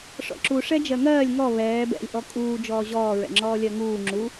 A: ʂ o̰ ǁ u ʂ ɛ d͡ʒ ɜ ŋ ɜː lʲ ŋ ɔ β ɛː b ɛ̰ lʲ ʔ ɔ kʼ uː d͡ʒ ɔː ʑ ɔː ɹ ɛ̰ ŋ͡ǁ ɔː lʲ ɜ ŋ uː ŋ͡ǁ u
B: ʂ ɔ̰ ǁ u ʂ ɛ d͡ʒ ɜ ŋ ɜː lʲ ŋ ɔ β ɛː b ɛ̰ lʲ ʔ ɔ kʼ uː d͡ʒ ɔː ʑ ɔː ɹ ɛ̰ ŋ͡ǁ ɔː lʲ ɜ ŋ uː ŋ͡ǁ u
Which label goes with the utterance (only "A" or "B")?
B